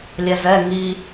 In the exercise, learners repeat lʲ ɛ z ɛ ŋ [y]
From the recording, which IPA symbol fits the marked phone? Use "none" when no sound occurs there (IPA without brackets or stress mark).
i